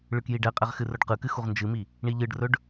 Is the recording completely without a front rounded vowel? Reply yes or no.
yes